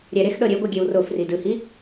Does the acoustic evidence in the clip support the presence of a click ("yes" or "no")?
no